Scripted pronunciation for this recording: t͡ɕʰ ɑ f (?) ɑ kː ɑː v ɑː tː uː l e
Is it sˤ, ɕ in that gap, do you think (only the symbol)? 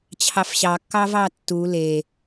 ɕ